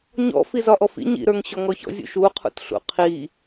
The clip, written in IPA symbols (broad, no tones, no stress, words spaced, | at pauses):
ɲɔ̰ fizɒʔɔfḭ ɲḭɾə˞ŋ ɕɔŋɔçɔ̰zʲṵ ʃu qʰṵtɬṵqʰi